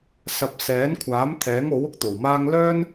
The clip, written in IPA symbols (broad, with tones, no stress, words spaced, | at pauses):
sɐ˨p̚sɛː˨˥nkʷʰaː˨˥m t̪ʰɛː˨˥ŋo˨˥w ʊ˥k̚t̪o˨˩wmaː˥ŋ lœː˥n